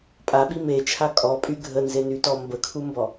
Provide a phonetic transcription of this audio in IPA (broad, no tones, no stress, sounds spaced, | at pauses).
pʼ a ɓ i m e t͡ʃʰ a kʼ ɔ pʼ y ɡʱ ə n z e n y t ɔ m b ə kʰ u m b ɔ